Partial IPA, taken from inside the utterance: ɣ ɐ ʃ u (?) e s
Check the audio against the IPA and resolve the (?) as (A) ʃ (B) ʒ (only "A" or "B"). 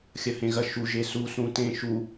B